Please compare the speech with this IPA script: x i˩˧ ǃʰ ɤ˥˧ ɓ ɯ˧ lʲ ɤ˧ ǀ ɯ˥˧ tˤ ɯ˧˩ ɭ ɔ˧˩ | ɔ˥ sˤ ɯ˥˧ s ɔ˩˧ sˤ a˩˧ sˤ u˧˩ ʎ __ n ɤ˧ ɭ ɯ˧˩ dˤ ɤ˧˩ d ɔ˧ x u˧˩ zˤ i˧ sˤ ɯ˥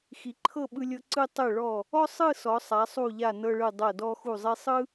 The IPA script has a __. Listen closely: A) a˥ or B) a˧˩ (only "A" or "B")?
B